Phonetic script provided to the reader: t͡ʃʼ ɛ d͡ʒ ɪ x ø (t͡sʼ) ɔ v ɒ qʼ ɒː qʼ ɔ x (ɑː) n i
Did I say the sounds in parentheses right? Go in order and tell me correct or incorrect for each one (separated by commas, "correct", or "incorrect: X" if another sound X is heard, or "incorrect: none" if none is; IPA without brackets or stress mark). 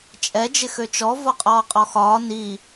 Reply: incorrect: t͡ʃ, incorrect: ɒː